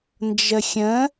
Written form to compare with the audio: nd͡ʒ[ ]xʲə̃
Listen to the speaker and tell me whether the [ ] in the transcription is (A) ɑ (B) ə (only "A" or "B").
B